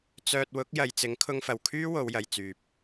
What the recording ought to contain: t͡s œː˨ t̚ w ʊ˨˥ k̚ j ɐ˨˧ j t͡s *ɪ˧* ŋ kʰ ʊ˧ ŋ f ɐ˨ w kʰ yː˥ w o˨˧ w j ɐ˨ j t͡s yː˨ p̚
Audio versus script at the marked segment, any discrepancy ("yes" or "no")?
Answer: yes